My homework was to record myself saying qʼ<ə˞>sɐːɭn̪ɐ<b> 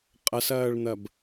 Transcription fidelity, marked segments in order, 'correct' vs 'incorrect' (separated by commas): incorrect, correct